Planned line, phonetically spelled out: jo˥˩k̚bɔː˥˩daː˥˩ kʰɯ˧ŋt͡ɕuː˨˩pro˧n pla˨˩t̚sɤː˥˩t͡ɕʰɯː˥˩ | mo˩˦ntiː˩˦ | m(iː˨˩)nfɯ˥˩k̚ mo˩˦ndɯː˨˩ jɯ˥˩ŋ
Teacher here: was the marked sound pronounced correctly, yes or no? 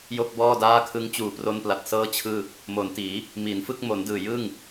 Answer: no